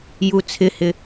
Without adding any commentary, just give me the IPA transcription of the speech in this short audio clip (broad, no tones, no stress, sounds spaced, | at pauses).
j u t͡sʰ ɪ h ɪ